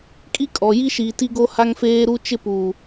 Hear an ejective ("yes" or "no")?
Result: yes